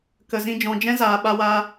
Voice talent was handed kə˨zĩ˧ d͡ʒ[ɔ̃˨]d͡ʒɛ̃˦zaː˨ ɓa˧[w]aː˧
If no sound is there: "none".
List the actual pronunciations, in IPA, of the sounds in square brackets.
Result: ɔ̃˨, w

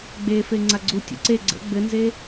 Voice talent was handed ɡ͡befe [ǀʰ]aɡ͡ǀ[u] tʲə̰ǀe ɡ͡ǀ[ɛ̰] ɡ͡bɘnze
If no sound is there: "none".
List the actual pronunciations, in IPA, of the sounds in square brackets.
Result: ŋ͡ǀ, u, ə̰

